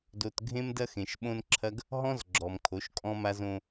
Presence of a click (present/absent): present